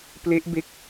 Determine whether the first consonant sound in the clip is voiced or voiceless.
voiceless